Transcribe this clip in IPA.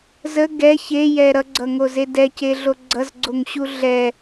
z ə ɡ ɛ ç e j ɛ ɾ ʌ ɡ͡ǀ ʌ ŋ o z e d ɛ c e ɮ o ɡ͡ǀ ʌ z ɡ͡ǀ o ŋ ɕ u ɮ ɛ

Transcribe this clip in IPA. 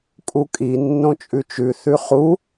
kʼ u kʼ i nː õ t͡ʃʼ ʉ t͡ʃ ʉ θ ʉ χ u

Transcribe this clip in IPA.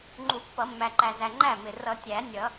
ŋ͡ǃ u˨˩˦ pː ʌ˨˩˦ mː æ˨ ǃ æ˨ z æ˨ ŋ͡ǃ æ˥˩ m ɪ˨ r ʌ˨˩˦ tʲ æ˨˩˦ nʲ ʌ˨˩˦

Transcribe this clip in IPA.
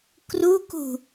k r u k ṳ

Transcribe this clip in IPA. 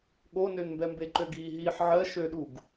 ɠ o n ø n m b ɛ m b e ǃ ø ɡ iː ɦ iː ħ ʕ ɜ ʃ ø ɗ u ɡ

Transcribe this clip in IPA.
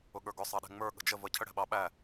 ʊ ɠ ə˞ ɡ ʊ sˤ ɑ ɗ ɛ̤ ŋ͡m ə˞ ɠ ə̤ d͡ʒ ə v ə cʰ ə ɽ ɛ̤ ɓ ɑ ɓ æ

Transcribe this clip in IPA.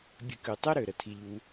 bʲ ə̤˧ k ʉ˨ tˤ ø˦ ɾ ø˨ ɾ ə˨ tʰ i˧ ʎ u˦

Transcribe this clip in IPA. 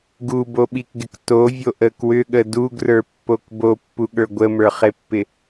ɡ u b o ɓ i k ɡ ɪ k t o vʲ o ʔ ə k w ʏ ɠ ə d u ɡ r ə˞ pː o k b o pː u ɠ ə˞ ɡʷ ə m ə˞ χ e pː ɪ

